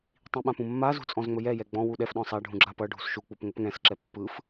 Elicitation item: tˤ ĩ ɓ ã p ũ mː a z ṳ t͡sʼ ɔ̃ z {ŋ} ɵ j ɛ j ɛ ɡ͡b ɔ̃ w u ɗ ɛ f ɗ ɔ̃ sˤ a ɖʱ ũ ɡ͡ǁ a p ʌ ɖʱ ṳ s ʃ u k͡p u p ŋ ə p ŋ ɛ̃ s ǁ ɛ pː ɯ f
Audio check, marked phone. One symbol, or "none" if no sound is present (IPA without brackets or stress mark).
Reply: ŋ͡m